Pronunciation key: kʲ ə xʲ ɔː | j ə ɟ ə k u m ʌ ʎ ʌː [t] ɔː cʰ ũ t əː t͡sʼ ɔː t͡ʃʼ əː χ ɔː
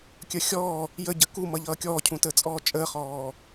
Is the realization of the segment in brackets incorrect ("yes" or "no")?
yes